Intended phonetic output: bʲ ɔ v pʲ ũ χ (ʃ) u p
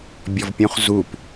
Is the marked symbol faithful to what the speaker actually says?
no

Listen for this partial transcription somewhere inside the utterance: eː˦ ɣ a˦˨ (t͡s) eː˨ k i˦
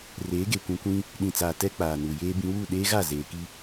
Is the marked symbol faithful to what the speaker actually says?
no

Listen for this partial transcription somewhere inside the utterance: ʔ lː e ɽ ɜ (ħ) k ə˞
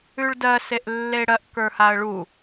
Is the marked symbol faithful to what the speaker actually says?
no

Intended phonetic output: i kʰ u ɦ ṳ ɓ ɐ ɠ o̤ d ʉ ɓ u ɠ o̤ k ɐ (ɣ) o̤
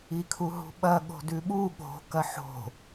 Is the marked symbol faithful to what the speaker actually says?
no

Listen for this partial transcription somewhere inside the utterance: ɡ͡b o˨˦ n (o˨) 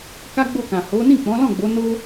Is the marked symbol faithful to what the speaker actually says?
no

